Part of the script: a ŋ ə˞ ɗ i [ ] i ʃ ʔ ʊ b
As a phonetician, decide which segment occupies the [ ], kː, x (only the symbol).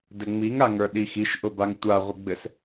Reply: x